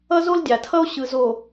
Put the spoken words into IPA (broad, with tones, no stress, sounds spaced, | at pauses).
ʌ˦ z o˦ l dʲ a˨ tʰ ʌ˦ o̯ ɕ ɯ˨ z o˨